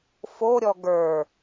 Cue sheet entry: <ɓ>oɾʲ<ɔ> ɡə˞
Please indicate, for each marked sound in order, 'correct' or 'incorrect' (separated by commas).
incorrect, correct